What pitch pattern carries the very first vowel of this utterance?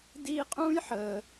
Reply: high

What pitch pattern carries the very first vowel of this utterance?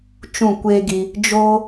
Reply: falling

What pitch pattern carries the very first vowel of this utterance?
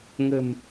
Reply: low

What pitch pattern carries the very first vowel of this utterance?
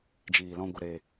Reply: low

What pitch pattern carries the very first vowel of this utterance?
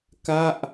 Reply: falling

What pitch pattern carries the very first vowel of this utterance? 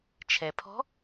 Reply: low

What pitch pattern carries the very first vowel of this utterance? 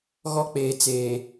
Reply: high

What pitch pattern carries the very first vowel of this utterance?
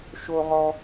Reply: high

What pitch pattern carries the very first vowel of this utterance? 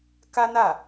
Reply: high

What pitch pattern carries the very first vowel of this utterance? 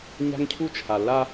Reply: high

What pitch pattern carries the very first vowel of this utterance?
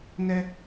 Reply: high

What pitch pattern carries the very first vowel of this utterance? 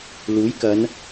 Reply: rising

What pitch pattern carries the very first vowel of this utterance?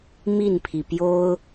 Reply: falling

